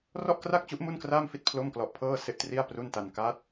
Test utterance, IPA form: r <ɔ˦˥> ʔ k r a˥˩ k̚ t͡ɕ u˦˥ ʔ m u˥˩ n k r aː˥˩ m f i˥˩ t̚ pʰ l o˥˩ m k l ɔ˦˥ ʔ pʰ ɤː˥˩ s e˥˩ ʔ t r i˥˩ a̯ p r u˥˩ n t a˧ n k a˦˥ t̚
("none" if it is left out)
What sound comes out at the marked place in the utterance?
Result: ɔ˥˩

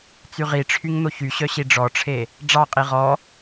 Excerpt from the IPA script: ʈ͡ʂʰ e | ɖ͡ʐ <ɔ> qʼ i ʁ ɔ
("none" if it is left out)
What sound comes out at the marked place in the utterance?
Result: ɑ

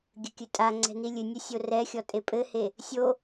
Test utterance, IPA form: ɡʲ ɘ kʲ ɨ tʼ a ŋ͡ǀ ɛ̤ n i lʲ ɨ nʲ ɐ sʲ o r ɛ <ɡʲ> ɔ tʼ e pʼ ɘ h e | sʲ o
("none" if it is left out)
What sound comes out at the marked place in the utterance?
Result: xʲ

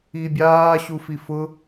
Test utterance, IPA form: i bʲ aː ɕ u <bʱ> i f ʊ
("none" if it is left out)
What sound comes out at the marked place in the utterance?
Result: f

